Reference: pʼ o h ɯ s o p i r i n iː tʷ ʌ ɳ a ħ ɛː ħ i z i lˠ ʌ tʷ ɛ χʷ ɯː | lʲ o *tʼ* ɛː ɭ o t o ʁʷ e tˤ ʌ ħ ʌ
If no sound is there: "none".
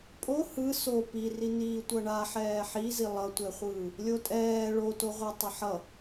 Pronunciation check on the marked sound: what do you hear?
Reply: tʼ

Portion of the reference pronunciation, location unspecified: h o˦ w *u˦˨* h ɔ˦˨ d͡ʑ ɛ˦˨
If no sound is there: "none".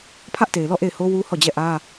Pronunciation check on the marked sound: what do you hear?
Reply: u˦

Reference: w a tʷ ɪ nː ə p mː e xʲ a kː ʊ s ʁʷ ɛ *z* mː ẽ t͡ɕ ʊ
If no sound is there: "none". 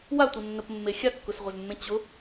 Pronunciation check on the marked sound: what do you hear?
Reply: z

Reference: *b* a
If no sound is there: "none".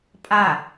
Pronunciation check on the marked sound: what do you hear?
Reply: pʼ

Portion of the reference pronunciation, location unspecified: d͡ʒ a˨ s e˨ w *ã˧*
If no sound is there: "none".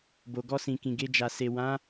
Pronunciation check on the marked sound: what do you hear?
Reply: ã˨˦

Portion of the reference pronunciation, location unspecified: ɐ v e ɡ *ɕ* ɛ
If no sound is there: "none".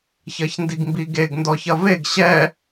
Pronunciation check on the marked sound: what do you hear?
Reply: ɕ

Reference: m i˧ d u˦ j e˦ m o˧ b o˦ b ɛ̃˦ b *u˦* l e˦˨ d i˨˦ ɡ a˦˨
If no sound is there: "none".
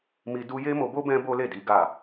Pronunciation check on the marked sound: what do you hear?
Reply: o˦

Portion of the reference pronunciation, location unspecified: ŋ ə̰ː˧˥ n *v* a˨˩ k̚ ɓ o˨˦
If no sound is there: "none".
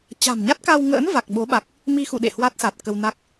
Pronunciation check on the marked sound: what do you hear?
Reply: v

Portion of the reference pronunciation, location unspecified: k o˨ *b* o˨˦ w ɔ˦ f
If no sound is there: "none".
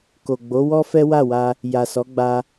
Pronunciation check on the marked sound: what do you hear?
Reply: ɡ͡b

